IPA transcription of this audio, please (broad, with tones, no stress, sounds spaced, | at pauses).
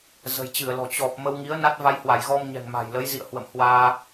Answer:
z ə̤˨˩ j t͡ɕ ɨ˧˩ ə̯ l ɔ̤˨˩ t͡ɕ ɔ˨˩ p̚ m ə˧ w ŋ i˨˦ ə̯ n a˦˥ t̚ v a˧ j h w a˧˩ j ɣ ɔ˧ m ɲ ɛ̤˨˩ ŋ m a̤˨˩ j l ə˨˦ j z ḭ˧˨ ə̯ h w ə̰˧˨ m h w aː˧